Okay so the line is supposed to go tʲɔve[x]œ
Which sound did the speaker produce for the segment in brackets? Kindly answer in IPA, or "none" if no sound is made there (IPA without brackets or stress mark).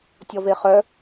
χ